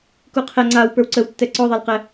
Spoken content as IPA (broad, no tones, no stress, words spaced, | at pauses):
kuqʰɛ ŋ͡ǀaw pə˞wǀəwtːɛ ǀɔðˤelqɛ